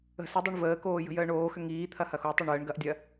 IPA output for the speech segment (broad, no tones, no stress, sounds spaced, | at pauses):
ə̤ s ə dˤ o ɳ v əː k oː j ə̤ j əː ɳ oː x ʏ ŋ iː t̪ʰ ɐ h ɐ x o tˤ ə ɳ əː ɳ ɡ ɐ ʔ dʲ ɐ